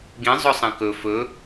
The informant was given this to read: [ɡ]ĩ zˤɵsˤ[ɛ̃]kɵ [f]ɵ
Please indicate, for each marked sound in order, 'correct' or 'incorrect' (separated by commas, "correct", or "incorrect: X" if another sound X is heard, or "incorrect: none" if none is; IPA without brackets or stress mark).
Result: correct, correct, correct